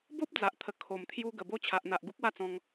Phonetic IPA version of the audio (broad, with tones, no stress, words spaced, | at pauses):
bo˦p̚d͡za˨ʔt̪ʰə˨˩ kʰo˨˩mt̪ʰju˧ ɡə˨˩bo˧ t͡ɕʰa˨ʔn̪a˨ʔ ɡu˦k̚wa˦t͡sɔ̃˧ŋ